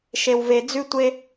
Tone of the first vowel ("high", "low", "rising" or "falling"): low